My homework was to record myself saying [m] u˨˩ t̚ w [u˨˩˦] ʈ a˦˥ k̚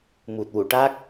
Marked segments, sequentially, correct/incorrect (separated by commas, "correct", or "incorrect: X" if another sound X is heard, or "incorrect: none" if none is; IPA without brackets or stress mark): correct, incorrect: u˨˩˨